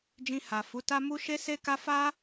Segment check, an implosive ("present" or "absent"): absent